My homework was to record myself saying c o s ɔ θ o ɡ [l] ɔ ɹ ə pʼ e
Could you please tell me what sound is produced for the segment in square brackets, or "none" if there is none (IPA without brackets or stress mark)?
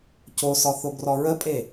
r